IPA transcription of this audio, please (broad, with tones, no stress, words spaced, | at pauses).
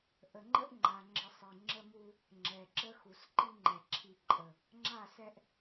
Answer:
ʔə˨ŋ͡ǃə˦ʔŋ͡ǃa˨ŋ͡ǁə˨ sˤi˨ŋ͡ǁə˦mu˦ | ŋ͡ǁɛ˨ǁə˦xu˨s ǃi˦ŋ͡ǃɛ˨ ǁʰi˨ ǃʼə˨ | ŋ͡ǁa˦˨sɛ˦ʔ